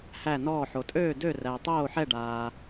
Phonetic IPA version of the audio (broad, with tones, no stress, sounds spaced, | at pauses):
h æ˥˨ n ɔː˥˨ ħ o˨ tʼ øː˥˨ d ø˥˨ r æ˨ tˤ oː˥˨ ħ ɛ˥˨ ɖ aː˨